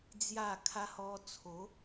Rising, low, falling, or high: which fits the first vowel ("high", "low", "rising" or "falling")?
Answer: falling